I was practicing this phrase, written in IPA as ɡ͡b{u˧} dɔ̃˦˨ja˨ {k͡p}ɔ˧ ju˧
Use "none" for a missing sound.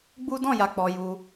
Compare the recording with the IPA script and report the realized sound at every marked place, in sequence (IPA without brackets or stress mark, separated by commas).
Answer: u˦, k͡p